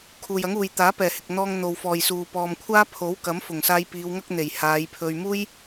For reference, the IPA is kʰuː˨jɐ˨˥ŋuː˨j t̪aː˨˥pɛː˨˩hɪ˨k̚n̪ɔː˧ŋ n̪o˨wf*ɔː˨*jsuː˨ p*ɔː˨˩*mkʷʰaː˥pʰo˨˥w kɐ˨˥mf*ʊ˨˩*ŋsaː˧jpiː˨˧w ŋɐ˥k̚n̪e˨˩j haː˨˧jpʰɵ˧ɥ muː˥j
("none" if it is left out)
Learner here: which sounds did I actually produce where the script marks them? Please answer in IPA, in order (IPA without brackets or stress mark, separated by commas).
ɔː˨, ɔː˨, ʊ˨˩